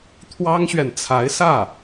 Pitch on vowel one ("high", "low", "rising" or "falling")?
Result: high